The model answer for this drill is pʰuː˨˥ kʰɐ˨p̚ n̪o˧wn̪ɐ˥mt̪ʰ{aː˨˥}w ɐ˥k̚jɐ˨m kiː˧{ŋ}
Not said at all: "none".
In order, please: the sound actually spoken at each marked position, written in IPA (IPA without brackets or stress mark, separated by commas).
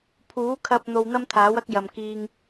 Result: aː˨˥, ŋ